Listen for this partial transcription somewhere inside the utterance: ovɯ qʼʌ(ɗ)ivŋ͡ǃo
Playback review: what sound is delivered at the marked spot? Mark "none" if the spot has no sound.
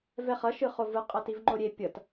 t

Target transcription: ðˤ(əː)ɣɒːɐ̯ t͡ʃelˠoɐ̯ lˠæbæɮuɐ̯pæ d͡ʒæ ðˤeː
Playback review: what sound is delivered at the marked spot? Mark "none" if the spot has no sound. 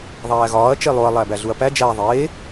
æː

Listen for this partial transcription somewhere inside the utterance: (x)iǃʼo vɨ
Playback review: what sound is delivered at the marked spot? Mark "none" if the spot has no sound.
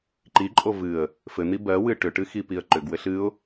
ǃ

